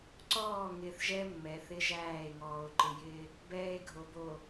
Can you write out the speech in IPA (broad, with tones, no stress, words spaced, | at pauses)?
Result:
ǀɔː˦˨ŋɪː˨θ ʒɛ˦ mːɛ˨θɪ˦ʒæː˦˨e̯ŋɔː˨o̯ ǃɪ˨jɪː˦ | bɛː˦e̯ɡʱo˨bo˨